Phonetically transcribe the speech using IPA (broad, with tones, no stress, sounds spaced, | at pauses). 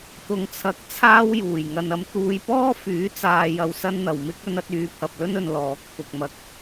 t̪ ʊ˨ ŋ t͡sʰ ɐ˨˥ k̚ t͡sʰ aː˥ w j uː˨˩ j ŋ ɐ˨ n ɐ˧ m t̪ uː˧ j p ɔː˥ f yː˨˥ t͡s aː˨ j ɐ˧ w s ɐ˥ n n̪ ɐ˨ w m ɪ˥ k̚ ɵ˧ n ɐ˧ t̚ yː˨˧ pʰ ɐ˨ p̚ l ɵ˥ n ɵ˧ n l ɔː˨˥ k̚ pʰ ʊ˧ k̚ m ɐ˧ k̚